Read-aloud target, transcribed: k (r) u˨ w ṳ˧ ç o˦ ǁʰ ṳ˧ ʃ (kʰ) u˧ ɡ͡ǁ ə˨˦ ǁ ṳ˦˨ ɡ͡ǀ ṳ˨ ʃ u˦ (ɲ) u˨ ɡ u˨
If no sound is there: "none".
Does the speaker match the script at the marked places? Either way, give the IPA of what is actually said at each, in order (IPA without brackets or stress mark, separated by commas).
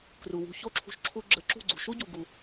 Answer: r, ǁʰ, ɟ